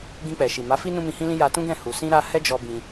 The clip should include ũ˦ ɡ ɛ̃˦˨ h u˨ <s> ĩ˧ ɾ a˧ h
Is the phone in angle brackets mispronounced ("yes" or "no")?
no